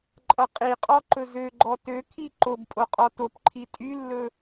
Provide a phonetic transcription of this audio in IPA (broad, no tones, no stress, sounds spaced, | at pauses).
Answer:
ǃʼ ʌ qʼ i qʼ ɔ ǃ ɵ z ø ɡ͡ǃ ɔ t ø kʰ i ǃ o b pʼ o qʼ ɔ t o p ǃʰ i tʼ y lː ɵ